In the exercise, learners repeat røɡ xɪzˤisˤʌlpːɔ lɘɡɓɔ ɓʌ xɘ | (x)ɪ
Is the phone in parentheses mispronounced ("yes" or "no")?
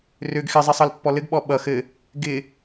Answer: yes